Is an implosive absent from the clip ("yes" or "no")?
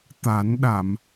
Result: no